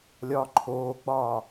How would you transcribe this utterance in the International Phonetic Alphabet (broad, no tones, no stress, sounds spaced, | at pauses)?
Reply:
lʲ ɒː ǃʰ oː ɡ͡b ɒː